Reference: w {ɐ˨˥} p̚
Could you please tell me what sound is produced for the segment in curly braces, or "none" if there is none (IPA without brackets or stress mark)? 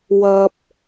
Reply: ɐ˧